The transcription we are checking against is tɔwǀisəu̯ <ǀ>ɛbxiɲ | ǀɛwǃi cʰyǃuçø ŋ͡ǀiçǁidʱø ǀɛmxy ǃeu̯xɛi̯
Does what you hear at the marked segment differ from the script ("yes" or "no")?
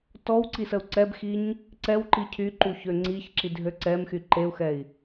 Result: no